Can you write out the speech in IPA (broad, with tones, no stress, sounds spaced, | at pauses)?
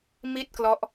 m i˥˩ t̚ k l ɔ˦˥ ʔ